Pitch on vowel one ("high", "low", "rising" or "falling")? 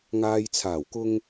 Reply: low